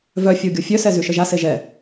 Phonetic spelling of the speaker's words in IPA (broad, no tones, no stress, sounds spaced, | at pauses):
v œ fʲ o ɡʲ o fʲ œ s ɛ z y ʃ ə ʒ a s e ʒ ɛ